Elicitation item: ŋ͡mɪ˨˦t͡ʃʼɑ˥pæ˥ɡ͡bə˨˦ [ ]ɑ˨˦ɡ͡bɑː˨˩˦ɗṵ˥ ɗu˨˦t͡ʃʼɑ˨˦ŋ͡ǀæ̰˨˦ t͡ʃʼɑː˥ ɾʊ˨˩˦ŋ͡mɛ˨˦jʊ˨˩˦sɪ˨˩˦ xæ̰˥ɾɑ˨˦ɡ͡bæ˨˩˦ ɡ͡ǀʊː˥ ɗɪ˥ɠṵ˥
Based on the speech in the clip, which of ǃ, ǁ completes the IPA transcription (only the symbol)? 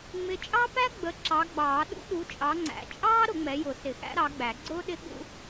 ǁ